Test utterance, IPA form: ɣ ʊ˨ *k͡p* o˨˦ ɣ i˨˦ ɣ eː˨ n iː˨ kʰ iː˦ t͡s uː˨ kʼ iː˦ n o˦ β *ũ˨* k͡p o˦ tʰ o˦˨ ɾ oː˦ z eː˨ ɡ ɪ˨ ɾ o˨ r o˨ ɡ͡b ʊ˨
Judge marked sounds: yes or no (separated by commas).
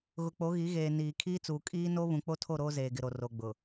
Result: yes, yes